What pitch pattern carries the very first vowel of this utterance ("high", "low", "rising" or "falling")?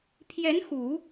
rising